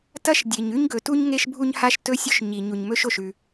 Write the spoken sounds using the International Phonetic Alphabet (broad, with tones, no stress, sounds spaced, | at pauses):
t ɐ˥ ʃ dʲ e˩ ɲ ʉ˥ ɲ ɡ ɵ˩ t u˥ ɲ ŋ e˥ ʃ bʱ u˥ ɲ h a˥ ʃ t ɵ˥ sʲ ɵ˥ ʃ ɲ i˩ ɲ u˩ ɲ m ɵ˥ ʃ o˩ ʃ ʉ˩